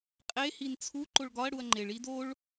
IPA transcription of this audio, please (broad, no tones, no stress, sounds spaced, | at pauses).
qʼ e h i n t͡sʰ u ǃ o ɭ ɡ ɒ ɐ̯ ɽ u ɐ̯ ŋ͡ǃ e ɭ i d o ɭ